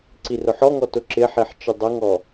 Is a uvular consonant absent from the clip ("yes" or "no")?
yes